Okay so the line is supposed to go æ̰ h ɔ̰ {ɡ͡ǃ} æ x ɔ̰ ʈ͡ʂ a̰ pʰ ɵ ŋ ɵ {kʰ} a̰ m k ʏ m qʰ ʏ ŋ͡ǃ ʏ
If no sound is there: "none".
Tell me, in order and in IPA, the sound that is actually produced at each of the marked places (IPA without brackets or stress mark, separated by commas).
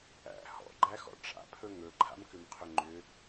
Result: ɡ͡ǃ, ǃʰ